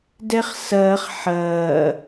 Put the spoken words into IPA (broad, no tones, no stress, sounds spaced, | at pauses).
d ɛ χ s ɐː χ ħ ɐː